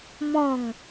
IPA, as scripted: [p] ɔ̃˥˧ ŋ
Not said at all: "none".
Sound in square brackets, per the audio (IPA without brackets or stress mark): m